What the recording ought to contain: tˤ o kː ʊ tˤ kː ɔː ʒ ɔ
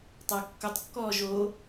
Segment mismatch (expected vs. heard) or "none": ɔ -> o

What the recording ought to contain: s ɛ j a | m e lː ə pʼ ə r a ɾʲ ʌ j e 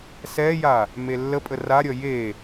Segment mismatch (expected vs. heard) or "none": none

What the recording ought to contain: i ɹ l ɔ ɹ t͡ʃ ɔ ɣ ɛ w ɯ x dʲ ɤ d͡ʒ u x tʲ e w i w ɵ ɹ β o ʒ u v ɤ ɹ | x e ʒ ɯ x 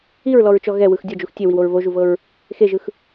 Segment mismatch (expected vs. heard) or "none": ɵ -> o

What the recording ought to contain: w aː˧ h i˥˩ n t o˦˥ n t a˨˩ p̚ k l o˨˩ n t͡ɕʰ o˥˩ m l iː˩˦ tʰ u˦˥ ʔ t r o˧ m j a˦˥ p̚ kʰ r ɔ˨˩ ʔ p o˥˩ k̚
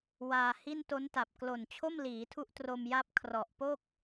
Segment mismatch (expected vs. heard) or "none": none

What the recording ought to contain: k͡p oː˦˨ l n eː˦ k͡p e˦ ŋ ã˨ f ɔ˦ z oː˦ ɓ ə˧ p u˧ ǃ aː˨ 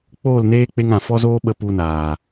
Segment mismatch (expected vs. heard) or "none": ǃ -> n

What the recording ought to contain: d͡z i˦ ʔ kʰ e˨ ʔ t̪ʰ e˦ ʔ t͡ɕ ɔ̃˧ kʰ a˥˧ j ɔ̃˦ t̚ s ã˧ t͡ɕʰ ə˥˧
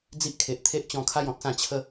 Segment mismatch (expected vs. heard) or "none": none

